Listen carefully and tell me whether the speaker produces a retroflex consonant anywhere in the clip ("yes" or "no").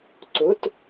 no